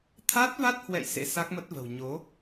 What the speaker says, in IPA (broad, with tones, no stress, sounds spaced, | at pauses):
t̪ʰ a˦˥ t̚ v a˦˥ t̚ h w ɛ̰˧˨ j s ḛ˧˥ s a˦˥ k̚ m ə˦˥ t̚ v ə̤˨˩ w ɲ o˨˦